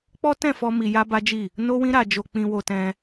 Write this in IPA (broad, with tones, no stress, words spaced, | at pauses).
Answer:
k͡pɔ˦tɛ̃˦˨fɔ˧ mi˧ja˦ba˦d͡ʒi˦˨ | no˦wĩ˦ ɾa˧d͡ʒo˧ k͡pĩ˧wo˧tɛ̃˧